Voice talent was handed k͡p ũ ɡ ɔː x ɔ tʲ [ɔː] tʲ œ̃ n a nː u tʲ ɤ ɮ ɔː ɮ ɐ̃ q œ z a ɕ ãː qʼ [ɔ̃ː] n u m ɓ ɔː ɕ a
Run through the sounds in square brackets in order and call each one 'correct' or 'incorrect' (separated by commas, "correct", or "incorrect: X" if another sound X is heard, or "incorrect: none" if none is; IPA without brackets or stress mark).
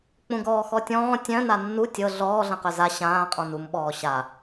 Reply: incorrect: ɔ̃ː, incorrect: ɔ̃